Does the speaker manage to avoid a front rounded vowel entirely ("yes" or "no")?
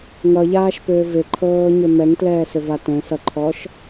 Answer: no